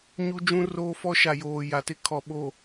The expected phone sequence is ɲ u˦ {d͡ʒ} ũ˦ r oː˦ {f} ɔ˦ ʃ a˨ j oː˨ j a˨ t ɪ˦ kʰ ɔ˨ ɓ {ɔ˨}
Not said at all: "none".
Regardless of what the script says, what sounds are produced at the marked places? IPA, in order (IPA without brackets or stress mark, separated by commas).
d͡ʒ, f, o˨